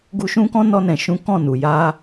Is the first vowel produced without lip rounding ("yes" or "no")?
no